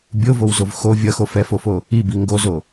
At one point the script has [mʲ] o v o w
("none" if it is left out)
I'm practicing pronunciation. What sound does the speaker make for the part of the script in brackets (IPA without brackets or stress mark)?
bʲ